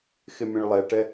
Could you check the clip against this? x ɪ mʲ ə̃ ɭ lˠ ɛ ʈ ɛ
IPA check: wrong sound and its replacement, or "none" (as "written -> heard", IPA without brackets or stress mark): none